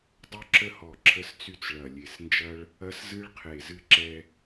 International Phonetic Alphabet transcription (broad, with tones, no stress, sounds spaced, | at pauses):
dˤ u˧ ǁ ə˧ h ɔ˨˩ ǁʰ ə˧ s t͡s y˧ t͡s ɭ ɐ˨˩ lʲ e˨˩ s n d͡ʒ ɐ˧ ɭ | ɐ˧ s z ɨ˧ ɭ qʰ e˨˩ z ɨ˧ ǁ ɛ˧